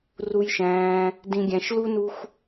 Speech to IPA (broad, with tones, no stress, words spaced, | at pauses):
ru˧jʃæ̃ː˧ | dĩ˨ɡʲæ̃˨ʃ lu˦nu˦xʷ